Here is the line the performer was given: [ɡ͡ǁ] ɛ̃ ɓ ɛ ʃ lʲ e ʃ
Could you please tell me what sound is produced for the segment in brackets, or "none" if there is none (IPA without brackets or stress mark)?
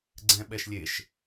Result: ɡ͡ǀ